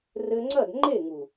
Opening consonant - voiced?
yes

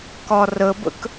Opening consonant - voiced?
no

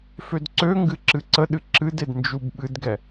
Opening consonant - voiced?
no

